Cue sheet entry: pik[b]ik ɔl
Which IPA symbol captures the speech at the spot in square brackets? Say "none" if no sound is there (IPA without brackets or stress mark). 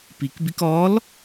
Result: b